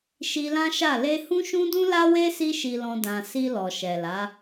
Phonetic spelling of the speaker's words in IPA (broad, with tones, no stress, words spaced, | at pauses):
ʃi˧lã˦ʃa˦˨ le˧hũ˦ ʃũ˦dũ˦la˦we˦ si˦ʃi˧lɔ̃˧ dã˨ si˧lɔ˨ ʃɛ˨la˨˦